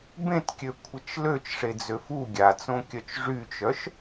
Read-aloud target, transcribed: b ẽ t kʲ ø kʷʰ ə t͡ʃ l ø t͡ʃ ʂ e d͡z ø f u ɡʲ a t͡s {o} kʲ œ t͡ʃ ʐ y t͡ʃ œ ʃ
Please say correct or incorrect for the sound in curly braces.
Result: incorrect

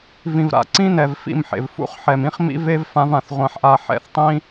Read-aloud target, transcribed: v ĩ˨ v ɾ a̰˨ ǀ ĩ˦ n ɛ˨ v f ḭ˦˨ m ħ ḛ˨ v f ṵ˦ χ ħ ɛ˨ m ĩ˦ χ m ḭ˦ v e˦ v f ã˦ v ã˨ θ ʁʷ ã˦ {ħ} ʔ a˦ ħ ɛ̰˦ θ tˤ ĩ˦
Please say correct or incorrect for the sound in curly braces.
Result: correct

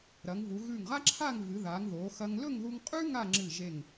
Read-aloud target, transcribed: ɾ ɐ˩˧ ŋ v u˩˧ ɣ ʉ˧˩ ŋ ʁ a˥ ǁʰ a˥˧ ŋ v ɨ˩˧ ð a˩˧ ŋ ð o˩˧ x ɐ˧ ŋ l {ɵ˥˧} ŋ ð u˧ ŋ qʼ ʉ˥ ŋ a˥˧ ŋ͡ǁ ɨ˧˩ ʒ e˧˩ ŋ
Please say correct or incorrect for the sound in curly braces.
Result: correct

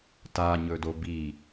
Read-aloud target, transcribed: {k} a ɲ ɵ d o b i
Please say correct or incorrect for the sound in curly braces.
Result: incorrect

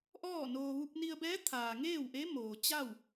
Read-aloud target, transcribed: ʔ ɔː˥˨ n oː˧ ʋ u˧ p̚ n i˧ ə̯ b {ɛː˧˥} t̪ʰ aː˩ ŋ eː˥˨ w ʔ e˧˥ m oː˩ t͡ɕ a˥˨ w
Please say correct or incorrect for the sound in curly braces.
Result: correct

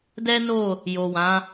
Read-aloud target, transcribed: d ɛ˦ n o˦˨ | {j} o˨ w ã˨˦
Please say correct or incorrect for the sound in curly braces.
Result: correct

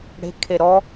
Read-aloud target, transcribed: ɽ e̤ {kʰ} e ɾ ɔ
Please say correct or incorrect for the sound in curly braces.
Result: correct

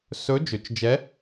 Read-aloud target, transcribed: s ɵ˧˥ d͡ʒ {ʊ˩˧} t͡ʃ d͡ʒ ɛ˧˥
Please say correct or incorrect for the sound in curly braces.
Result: incorrect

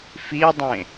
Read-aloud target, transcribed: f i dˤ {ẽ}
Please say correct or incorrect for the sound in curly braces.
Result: correct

